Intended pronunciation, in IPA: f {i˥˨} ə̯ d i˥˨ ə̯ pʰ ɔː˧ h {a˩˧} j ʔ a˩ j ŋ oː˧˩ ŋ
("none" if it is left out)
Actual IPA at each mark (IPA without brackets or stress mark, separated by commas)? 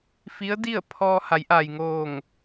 i˧˥, a˩˧